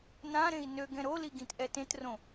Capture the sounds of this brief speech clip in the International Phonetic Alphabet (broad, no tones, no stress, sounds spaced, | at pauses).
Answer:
n ã ɾ ẽ i̯ n ø ɡ ɛ̃ ɾ o l i ɡ ĩ t ʔ ɛ t ẽ t r õ